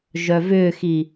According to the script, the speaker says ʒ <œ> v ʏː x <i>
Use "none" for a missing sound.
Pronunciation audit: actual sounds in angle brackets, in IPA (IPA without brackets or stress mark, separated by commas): œ, i